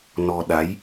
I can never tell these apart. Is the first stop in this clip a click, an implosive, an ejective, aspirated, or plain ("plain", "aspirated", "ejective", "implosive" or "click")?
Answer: implosive